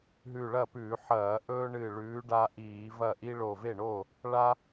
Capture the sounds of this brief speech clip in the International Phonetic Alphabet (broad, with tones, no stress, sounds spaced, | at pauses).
ɦ ʉ˧˩ ɭ ɐ˥˩ p ʉː˧˩˧ ħ ɐː˧˩˧ ʔ ɵː˦ ɳ ɨ˧˩ ɭ ʉː˨˦ ɖ a˦ ʔ iː˧˩˧ v ɐ˥˩ ʔ i˦ ɭ o˧˩ v e˥˩ ɳ o˥˩ | ɭ a˦